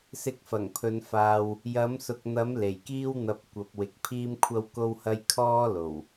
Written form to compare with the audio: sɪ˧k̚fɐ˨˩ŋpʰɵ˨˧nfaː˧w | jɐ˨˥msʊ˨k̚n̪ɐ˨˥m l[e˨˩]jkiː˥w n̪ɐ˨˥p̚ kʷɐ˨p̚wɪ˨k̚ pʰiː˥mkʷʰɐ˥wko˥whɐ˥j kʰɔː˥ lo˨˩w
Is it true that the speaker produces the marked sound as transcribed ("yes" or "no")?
yes